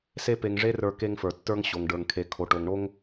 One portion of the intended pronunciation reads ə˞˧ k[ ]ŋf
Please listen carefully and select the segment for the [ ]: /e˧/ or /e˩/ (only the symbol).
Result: e˧